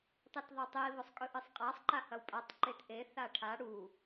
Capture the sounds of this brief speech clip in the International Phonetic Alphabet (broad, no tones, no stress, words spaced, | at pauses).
tˤitðˤotˤi βosˤkʼɵʔɨsˤqʼasˤ ǃahɐwpʼatˤ ǃetʔe θaʈʰa ɽu